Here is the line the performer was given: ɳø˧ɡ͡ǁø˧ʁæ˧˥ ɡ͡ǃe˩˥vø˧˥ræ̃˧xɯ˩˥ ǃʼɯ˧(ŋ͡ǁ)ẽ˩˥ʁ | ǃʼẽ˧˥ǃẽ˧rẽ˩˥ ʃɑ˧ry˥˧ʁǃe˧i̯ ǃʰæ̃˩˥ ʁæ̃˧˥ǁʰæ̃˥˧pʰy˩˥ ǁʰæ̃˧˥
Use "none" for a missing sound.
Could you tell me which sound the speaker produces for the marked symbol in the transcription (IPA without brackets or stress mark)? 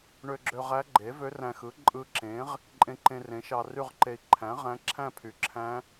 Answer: ǁ